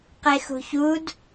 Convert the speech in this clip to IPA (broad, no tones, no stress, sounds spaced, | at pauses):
q e x ṳ ç u d